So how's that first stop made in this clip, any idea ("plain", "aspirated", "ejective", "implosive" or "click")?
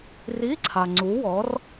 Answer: click